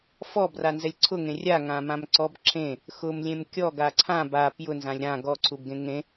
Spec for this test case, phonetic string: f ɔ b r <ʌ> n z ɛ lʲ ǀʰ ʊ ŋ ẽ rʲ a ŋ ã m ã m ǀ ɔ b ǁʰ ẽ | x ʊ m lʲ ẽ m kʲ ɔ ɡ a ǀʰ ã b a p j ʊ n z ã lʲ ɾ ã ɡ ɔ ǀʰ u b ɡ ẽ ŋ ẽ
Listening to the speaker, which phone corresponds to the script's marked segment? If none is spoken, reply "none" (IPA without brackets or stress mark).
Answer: a